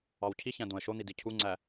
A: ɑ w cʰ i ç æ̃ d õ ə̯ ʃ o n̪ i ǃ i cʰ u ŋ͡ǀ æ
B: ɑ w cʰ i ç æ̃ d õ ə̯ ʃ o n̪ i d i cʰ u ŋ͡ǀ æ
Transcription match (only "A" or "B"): B